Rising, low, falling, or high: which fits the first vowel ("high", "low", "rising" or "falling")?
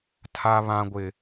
high